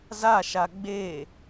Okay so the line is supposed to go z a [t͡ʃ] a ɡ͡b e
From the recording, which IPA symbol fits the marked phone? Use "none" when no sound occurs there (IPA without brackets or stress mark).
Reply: ʃ